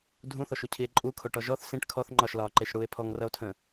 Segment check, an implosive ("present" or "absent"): absent